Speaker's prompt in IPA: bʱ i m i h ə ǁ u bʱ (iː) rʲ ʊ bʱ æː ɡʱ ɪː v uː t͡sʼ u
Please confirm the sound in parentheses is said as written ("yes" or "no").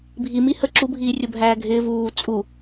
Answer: yes